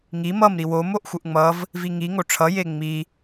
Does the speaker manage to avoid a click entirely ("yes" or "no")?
yes